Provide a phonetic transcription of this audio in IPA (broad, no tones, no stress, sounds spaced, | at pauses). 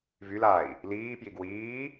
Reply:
v y l a i̯ | l iː p j i ɡ w iː